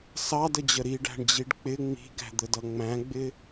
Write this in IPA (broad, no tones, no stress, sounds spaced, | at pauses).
s ɑ d ə d͡ʑ ə ɾ i ɖ æ̤ ɳ d͡ʑ i ɖ k͡p ɪ ŋ͡m i̤ ɡ æ̤ d̪ ə d ʌ ŋ͡m æ̃ ɡ͡b ɪ